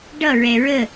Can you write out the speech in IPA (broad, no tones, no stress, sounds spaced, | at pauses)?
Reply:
ɖ ʌ ɹ ɛ ɹ ə